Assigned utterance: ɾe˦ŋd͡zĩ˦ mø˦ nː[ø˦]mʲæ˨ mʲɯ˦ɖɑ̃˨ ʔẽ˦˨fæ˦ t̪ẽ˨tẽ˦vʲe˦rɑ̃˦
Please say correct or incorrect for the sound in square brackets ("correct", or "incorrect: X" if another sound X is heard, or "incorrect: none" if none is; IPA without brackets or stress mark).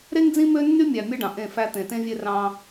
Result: incorrect: y˦